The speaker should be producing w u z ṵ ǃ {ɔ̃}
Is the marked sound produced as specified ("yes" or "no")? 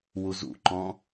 yes